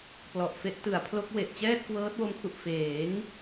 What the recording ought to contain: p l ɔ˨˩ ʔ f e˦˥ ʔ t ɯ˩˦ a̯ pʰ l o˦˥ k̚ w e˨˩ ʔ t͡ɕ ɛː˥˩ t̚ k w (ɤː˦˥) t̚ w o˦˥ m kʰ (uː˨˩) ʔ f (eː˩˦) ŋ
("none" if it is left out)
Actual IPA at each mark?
ɤː˦˥, u˨˩, eː˩˦

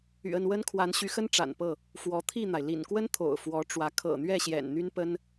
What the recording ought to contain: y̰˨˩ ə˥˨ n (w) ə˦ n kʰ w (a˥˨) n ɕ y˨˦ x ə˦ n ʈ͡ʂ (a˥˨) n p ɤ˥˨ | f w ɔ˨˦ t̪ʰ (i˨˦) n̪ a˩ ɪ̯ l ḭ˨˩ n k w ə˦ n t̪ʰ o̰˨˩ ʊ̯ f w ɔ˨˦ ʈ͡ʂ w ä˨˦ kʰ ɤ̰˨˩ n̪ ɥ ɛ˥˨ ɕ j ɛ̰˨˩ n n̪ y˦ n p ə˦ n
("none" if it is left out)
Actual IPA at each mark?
w, a˨˦, a̰˨˩, i˥˨

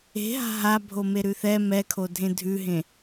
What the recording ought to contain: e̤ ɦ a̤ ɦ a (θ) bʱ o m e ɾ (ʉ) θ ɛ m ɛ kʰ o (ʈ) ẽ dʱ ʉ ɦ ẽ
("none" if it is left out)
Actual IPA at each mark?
none, ʉ, dʱ

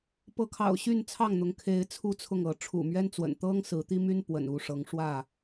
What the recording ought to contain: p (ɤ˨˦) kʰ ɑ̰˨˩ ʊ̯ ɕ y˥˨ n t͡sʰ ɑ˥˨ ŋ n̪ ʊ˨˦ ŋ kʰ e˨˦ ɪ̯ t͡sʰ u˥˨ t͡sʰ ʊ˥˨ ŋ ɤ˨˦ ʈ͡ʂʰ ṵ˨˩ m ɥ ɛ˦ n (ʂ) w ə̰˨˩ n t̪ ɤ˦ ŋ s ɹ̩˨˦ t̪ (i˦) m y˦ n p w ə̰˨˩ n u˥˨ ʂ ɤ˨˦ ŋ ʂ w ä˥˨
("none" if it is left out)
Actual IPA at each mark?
ɤ˨˦, t͡s, i˦

